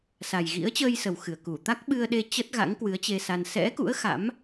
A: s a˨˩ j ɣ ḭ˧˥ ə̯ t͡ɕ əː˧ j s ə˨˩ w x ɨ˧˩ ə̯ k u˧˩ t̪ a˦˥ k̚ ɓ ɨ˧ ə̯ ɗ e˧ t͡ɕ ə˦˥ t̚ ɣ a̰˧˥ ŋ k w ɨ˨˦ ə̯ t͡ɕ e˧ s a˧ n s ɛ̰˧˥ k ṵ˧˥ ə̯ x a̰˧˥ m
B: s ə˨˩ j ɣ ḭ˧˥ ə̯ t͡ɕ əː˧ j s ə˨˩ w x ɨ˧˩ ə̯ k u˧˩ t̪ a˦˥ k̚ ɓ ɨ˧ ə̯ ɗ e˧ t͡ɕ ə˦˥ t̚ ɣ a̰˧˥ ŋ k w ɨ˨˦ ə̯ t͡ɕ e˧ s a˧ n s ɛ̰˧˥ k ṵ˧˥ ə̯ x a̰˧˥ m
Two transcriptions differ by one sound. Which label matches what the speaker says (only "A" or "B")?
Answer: A